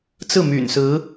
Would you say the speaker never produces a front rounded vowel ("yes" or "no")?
no